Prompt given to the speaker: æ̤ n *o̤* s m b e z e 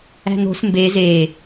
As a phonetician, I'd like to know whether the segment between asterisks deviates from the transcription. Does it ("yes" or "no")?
no